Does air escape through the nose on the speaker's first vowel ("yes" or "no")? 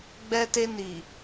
no